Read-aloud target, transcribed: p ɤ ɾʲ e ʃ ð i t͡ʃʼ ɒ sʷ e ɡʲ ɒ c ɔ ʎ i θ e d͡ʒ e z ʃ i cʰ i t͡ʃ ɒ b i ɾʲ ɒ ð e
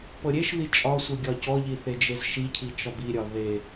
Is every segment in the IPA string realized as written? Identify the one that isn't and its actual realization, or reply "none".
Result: none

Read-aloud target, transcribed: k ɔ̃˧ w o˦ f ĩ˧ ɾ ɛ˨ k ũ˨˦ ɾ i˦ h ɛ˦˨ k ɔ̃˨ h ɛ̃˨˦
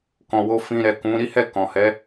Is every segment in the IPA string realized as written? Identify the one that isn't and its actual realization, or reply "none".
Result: ɛ̃˨˦ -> ɛ˨˦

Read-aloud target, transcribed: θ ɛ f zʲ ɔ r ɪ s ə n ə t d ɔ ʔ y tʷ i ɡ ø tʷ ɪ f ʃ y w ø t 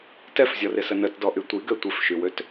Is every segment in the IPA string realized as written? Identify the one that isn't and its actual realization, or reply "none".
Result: θ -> t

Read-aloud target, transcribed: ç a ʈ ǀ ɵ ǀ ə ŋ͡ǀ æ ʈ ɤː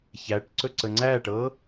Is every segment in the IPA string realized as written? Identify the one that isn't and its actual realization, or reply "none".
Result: a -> æ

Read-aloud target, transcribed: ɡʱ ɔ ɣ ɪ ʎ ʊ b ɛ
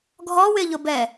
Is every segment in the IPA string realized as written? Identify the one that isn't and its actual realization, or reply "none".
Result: ɣ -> w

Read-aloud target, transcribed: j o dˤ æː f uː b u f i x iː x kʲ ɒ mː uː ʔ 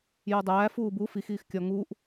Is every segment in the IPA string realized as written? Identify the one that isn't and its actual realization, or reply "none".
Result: mː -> ŋ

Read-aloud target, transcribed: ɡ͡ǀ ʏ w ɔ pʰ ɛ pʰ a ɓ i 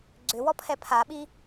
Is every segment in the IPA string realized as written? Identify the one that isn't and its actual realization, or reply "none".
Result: none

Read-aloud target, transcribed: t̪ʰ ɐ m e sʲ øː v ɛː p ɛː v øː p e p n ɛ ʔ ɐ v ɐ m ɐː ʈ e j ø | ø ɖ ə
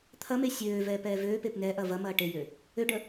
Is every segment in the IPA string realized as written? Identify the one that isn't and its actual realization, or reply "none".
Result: none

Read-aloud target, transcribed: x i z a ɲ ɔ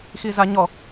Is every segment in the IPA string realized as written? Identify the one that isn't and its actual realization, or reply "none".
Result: none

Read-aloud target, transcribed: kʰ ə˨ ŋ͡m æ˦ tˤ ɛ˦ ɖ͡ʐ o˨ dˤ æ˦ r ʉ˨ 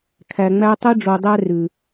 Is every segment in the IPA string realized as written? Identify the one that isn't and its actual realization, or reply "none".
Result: ə˨ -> æ˨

